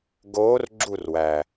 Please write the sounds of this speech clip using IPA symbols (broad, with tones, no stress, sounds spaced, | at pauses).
ɡ oː˧˥ r ɡ͡ǁ u˥˨ r w æ˨˩